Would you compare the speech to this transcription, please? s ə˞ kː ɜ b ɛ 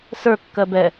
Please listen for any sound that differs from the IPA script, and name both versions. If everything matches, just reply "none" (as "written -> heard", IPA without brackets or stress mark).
none